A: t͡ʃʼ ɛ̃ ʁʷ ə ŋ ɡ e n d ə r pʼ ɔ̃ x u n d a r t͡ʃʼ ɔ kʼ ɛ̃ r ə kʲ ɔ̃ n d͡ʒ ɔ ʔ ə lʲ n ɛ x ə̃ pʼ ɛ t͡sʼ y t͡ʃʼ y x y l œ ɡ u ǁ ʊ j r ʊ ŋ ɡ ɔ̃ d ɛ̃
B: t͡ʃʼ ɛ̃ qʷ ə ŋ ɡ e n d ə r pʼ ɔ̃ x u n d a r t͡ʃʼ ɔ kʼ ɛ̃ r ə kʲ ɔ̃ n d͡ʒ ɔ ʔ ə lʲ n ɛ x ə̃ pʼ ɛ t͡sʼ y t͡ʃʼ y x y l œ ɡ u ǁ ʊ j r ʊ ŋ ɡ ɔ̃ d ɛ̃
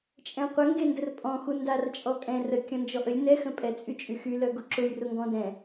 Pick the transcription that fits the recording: B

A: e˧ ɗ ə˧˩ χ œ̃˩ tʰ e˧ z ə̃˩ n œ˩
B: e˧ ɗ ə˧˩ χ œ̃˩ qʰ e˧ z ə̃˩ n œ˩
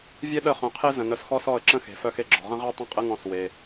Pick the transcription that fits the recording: B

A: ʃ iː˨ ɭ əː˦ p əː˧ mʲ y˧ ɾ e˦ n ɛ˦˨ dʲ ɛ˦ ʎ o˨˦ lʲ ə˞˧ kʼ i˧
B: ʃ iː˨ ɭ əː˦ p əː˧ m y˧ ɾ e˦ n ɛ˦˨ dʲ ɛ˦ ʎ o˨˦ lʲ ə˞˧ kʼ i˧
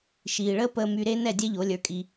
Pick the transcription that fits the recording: B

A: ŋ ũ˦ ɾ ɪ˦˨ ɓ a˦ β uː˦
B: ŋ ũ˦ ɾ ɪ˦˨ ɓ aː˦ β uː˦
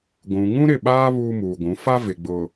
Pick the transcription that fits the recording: B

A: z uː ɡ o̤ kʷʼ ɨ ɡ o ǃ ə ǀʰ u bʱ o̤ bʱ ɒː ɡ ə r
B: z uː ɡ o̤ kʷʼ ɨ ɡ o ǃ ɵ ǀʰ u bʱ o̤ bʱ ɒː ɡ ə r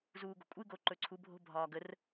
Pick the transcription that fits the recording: B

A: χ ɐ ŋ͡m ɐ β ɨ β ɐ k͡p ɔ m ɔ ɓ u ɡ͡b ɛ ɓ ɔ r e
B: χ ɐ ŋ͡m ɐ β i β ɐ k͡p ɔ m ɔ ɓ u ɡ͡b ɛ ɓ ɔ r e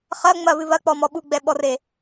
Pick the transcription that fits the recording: A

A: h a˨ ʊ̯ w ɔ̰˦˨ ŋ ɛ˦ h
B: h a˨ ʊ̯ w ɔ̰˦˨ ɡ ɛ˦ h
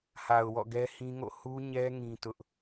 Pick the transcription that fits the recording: B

